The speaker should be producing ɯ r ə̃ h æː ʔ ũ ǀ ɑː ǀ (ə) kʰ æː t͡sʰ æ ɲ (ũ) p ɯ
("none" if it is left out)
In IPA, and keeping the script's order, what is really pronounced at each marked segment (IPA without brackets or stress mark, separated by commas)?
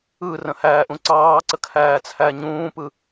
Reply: ə, ũː